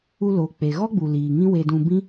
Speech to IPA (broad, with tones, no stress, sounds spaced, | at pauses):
u˧ l oː˨ k͡p e˨ ɣ ɔ˦ ɡ͡b u˨ l iː˨ ŋ ĩ˦ w e˧ d ũ˧ b ĩ˦